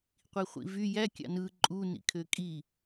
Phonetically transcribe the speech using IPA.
qʷ i χʷ ḭ v y j æ kʲ ɑ̰ n ɯ ǃʼ u n ḭ kʰ ø kʼ i

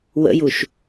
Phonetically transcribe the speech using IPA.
w ə̰ j u ʃ

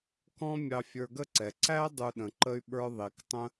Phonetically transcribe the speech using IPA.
k ɔ̃˥ mʲ ɑ˧ fʲ ə˞˧ ɡ ə˥ ǀ ɛ˩ ǀ æ˥ dˤ u˧ ɗ ə̃˩ ǃ ə˥ y̯ ɓ ə˞˥ ðˤ i˩ k tˤ ə̃˥

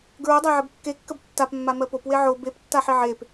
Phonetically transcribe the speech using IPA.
ɡ ɹ o dˤ a ʕ ə b kː e kː ə b tː a p mː a m ɜ p o p w e ʕ o b e p tː a ħ i ʕ e p

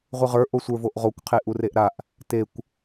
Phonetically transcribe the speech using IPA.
ʁʷ ɯ ʁ ə˞ ʔ o sʷ ə˞ v o ʔ ʁ o kʷ qʰ e ʔ u r e ʔ ɾ a ʔ | t e kʷ

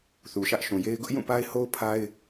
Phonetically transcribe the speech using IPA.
θ u˨ ʃ ä˦ ʔ ʃ ũ˨ j e˦ ɪ̯ ɡ ʊ˦ ʔ j ũ˦˨ p a˦ ɪ̯ h o˦ ʊ̯ pʰ a˦ ɪ̯

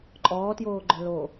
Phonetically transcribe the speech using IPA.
ǃʼ ɔː t j oː ɡ͡ǃ œ l o

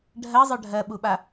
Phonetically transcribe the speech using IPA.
ɖʱ ɜ zˤ œ ɖʱ ɜ ɓ u ɓ a

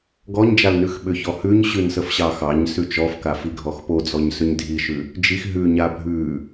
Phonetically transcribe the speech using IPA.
ɡ ɔ ɲ d͡ʒ a l n ʉ x ɓ ʏ ç ɔ h ʉ ɲ ɕ ʉ n s ə f ɕ ɑ x ɑ ɲ s ʉ t͡ʃ ɔ f k a f i ɡʱ ɔ x p o d͡z ɔ ɲ s ʏ ɲ dʱ i ʃ ʉ | d͡ʒ i x ɦ ʉ ɲ a bʱ ʉ

